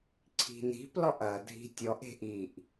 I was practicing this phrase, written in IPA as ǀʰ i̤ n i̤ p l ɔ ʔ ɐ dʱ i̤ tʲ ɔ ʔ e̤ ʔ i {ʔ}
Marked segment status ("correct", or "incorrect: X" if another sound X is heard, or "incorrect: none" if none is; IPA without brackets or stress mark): correct